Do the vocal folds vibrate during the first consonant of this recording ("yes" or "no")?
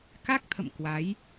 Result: no